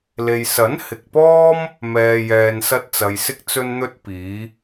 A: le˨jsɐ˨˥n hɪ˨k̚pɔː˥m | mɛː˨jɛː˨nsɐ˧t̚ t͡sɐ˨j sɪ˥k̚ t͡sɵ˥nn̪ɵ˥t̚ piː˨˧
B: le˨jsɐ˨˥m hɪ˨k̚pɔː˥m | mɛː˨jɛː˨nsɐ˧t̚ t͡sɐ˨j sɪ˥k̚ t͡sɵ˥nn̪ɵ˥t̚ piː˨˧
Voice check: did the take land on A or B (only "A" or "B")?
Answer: A